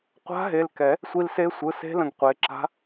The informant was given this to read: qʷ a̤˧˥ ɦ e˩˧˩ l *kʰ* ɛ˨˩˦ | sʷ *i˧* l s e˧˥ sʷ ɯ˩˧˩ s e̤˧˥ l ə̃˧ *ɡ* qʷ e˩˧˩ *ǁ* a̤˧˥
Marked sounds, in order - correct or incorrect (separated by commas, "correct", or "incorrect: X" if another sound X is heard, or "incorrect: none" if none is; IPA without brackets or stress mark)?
incorrect: k, correct, correct, correct